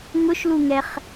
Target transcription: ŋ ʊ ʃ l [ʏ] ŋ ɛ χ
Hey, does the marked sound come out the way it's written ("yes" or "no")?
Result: no